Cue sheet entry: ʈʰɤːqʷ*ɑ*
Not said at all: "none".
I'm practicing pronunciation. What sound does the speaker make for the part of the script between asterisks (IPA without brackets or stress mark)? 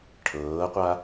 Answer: a